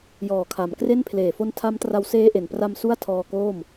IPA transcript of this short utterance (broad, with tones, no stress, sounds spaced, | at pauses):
j ɔː˨˩ kʰ a˩˦ m k r e˥˩ n pʰ l eː˨˩ f o˦˥ n tʰ a˦˥ m t r a˧ w s eː˦˥ ʔ e˨˩ n p r a˧ m s u˥˩ a̯ tʰ ɔː˧ k oː˥˩ m